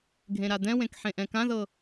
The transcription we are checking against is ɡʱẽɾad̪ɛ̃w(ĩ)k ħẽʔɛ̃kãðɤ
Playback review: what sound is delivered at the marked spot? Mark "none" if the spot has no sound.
ẽ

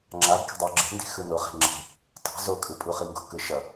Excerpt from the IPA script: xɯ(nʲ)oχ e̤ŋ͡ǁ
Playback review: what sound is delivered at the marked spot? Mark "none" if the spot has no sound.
n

